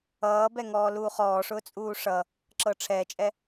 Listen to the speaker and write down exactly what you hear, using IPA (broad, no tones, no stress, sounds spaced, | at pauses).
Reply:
ʌː b ɛ ŋ ɔː l uː χ ɔː ʂ ʊː t͡sʼ uː ʂ ʌ | ǁ ɤ ʈ͡ʂʰ ɛː t͡ʃʼ ɛ